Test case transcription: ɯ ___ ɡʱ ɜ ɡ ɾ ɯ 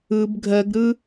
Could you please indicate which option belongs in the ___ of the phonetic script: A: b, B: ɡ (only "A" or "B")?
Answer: A